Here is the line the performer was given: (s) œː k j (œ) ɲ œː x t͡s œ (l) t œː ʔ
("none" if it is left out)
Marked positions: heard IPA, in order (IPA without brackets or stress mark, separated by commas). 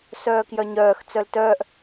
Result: s, œ, l